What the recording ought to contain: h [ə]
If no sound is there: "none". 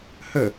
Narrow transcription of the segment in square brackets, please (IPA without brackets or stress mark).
ə